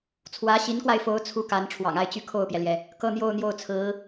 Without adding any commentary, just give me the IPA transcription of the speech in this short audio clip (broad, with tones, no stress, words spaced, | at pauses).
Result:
t͡sʰwä˧˥ɕi˧˥nkwa˧ɪ̯fo˧˥ʊ̯ t͡sʰu˥ka˧˥n ʈ͡ʂʰwɑ̰˨˩ŋa˥˧ɪ̯t͡ɕy˥˧ kʰo˥˩ʊ̯pjɛ˩ljɛ˩ | kɤ˥˧n̪jo˥˧ʊ̯n̪jo˥˩ʊ̯t͡sʰɹ̩˧˥